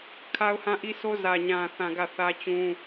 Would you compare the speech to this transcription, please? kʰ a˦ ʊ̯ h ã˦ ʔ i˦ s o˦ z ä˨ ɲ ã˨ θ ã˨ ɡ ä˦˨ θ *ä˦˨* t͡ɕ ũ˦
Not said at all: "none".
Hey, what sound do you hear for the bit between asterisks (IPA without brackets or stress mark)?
ä˦